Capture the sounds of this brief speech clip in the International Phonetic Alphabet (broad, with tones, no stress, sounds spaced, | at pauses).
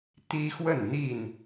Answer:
t̪ i˦ x w ə˥˨ n n̪ i˥˨ n